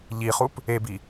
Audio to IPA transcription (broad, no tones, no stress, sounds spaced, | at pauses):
ʎ i χ u p | e b i